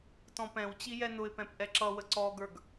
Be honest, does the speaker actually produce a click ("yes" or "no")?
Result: yes